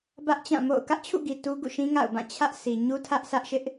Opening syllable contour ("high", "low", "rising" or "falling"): high